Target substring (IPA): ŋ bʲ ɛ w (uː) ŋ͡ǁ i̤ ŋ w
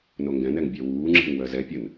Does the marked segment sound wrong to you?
no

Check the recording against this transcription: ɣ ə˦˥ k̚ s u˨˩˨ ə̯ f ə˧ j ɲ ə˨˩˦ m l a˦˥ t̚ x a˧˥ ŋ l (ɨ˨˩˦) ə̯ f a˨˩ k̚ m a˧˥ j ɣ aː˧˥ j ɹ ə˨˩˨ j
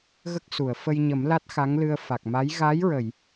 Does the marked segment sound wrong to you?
yes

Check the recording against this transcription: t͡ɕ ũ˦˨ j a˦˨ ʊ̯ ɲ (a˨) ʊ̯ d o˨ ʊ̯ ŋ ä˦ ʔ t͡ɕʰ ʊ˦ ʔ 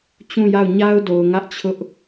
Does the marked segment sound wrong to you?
yes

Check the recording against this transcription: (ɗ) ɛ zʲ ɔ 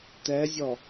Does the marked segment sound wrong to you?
yes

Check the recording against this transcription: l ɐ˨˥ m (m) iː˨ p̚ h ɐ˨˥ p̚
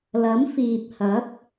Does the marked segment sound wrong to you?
yes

